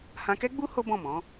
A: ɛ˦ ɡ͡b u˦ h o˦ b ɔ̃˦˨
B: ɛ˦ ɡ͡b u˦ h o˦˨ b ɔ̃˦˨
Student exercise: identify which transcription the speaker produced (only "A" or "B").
A